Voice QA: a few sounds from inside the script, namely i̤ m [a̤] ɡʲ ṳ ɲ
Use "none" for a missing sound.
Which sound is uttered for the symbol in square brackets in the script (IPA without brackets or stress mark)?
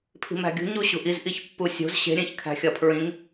æ̤